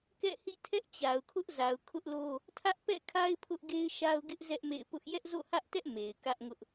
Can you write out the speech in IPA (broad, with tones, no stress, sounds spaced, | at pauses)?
k ɛ̰˦˨ h ḭ˦˨ tʰ ɛ˦ ʔ t͡ɕ a˨ ʊ̯ kʰ ʊ˦ ʔ z a˨ ʊ̯ kʰ ʊ˦ ʔ l o˦ | tʰ ä˦ ʔ p ɛ̰˦˨ kʰ a˦ ɪ̯ pʰ ʊ˦ ʔ ɡ e˦ ɪ̯ ʃ a˦ ʊ̯ ɡ ɪ˦ ʔ z ɛ˦ ʔ m ḛ˦˨ ɪ̯ p ʊ˦ ʔ j ɛ˦ ʔ z o̰˦˨ h ä˦ ʔ t ɛ˦ ʔ m e˨ ɪ̯ k ä˦ ʔ ŋ ʊ˦ ʔ